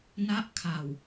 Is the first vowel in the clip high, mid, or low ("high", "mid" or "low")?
low